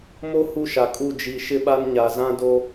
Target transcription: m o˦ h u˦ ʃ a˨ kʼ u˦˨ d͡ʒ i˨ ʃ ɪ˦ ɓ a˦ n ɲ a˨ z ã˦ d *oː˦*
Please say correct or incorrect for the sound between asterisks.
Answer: incorrect